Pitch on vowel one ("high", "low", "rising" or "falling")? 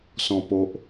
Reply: low